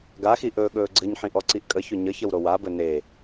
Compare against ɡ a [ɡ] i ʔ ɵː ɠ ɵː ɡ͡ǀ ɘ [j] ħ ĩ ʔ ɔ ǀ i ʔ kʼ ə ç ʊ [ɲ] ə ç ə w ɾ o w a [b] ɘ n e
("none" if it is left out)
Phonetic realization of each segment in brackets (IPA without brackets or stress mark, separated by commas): x, ɲ, ɲ, b